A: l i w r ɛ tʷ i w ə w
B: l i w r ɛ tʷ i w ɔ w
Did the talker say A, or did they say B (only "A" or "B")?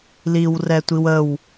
A